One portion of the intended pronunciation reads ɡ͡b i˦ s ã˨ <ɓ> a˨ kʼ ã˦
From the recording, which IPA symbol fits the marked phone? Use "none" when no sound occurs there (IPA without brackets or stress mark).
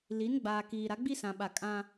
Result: ɓ